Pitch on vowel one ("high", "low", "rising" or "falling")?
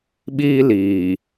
high